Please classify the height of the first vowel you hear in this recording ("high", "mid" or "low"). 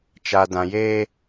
low